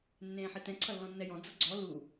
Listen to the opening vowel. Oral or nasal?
nasal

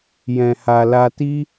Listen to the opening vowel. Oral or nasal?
nasal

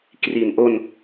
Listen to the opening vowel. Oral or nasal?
oral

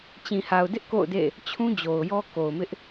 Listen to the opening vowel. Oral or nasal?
nasal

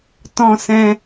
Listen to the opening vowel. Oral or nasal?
nasal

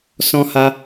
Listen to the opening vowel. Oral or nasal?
nasal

